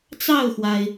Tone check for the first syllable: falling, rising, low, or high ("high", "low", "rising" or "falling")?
falling